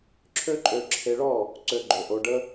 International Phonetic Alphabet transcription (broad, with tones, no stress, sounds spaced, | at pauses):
ǁʰ ø˦ ǃʼ ø˧ ǁʰ e˧ ɭ ɔ˦˨ | ǀ ø˧ ɡ͡ǃ o˨ ʔ o˧ ɖ ə˦